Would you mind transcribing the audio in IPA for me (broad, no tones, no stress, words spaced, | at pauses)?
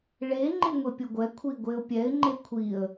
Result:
ɭe ŋ͡ǃɪŋʷepʲoɡʷɛ kʷʰiɡʷeʊ̯pʲɛɪ̯ ŋ͡ǃekʷʰiə̯